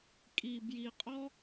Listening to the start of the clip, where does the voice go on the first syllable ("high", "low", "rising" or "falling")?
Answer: low